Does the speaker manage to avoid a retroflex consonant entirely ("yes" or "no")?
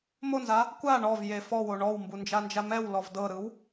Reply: no